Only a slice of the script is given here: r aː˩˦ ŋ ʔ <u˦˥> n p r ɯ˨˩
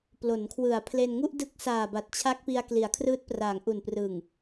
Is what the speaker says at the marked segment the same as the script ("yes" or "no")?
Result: no